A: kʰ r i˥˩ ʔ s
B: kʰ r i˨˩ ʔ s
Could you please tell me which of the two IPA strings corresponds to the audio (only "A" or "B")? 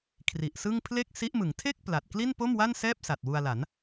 B